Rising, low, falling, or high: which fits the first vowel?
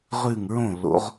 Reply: falling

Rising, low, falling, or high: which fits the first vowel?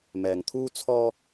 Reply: low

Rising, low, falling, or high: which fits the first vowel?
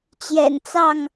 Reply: low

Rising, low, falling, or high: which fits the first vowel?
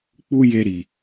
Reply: high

